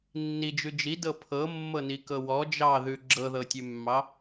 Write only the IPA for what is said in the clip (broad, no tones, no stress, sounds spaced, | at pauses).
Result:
nː i d͡ʒ ʉ d͡ʒ i d ɤ pʰ ɤ mː ɤ n i k ɤ w ɔ d͡ʒ ɑ ð ʉ ɡ͡ǁ ɤ ð ɤ tʲ ʉ mː ɑ